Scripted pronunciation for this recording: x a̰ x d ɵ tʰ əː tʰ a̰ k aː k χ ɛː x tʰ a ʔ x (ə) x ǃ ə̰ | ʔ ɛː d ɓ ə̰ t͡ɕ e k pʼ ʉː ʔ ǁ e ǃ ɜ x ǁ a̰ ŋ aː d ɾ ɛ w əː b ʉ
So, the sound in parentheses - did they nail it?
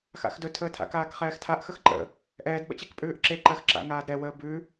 yes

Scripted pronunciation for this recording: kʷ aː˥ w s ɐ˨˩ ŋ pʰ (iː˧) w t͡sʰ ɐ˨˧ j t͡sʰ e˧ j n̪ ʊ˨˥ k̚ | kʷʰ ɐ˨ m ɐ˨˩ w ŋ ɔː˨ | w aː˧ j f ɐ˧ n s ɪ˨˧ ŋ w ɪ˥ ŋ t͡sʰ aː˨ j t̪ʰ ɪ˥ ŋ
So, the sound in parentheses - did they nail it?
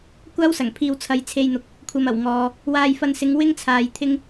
yes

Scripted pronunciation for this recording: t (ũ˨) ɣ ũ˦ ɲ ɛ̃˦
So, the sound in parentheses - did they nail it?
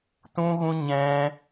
no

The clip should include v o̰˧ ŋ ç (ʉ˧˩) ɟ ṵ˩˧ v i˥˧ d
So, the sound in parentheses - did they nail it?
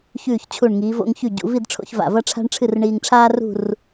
yes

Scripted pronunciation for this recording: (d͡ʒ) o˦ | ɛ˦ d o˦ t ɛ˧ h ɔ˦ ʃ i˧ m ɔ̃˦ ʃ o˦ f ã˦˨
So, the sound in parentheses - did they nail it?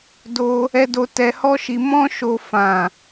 no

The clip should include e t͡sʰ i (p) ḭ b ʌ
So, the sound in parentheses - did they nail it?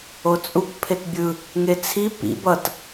yes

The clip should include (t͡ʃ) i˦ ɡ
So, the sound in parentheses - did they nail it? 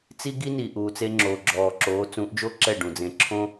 no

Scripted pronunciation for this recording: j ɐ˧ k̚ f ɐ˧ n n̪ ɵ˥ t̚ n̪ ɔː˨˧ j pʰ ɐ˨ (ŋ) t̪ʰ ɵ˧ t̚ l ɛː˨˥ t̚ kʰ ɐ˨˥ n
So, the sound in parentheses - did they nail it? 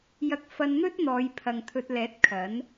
yes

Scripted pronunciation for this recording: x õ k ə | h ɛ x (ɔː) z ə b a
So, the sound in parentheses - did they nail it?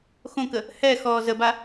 yes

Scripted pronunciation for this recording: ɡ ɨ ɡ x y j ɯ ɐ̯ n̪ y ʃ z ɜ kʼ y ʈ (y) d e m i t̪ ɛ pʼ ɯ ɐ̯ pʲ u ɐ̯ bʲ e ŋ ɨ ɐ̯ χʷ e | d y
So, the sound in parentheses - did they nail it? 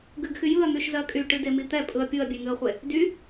no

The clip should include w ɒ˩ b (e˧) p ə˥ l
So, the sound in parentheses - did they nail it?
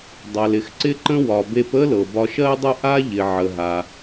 yes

